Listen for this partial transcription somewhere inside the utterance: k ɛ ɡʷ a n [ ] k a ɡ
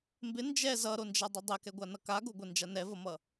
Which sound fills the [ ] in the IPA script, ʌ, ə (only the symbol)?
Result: ʌ